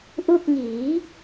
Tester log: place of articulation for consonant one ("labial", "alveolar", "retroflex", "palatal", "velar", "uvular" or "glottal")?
glottal